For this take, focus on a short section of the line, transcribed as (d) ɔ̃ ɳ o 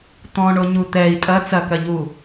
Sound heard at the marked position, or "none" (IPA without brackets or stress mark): t̪